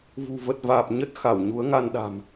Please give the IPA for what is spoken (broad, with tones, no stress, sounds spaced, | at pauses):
v ṳ˨˩ v ə˨˩ t̚ v aː˨˩ p̚ ɲ ə˦˥ t̚ x a˧˩ w ɲ u˨˦ ə̯ ŋ a˧ n ɗ a̤˨˩ m